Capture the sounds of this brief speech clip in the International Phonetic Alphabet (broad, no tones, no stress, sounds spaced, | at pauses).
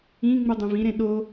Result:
ĩ ŋ͡m u dˤ œ̃ v ĩ ɾ ẽ ɗ o